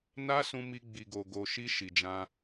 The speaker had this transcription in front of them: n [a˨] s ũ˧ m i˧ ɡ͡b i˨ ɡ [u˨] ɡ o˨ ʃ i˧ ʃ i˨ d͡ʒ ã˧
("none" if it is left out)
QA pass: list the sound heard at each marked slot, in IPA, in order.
a˦, o˨

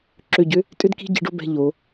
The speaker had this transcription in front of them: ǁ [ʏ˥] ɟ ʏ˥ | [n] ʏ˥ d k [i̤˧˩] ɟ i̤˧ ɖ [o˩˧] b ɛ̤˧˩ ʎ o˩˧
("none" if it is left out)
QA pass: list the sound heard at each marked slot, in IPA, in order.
ʏ˧˩, tʼ, i̤˥˧, o˥˧

